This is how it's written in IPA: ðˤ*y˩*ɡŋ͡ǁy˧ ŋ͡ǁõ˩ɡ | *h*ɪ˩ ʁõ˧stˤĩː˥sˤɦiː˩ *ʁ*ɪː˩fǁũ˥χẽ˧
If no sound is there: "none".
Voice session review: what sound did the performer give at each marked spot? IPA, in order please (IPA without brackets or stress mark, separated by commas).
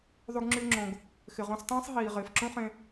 y˧, x, ʁ